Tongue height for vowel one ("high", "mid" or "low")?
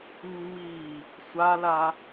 high